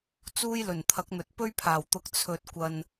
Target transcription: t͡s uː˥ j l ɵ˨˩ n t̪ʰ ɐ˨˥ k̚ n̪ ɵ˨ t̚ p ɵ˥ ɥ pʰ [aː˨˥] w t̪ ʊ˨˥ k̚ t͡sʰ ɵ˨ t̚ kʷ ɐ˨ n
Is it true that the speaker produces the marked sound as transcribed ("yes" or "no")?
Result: no